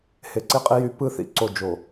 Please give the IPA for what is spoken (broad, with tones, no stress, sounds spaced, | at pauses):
h e˨˦ ǀ i˦ qʼ i˦ j y˦ p ɯ˦ θ ḭ˨ ǀ o˦˨ d͡ʒ o˨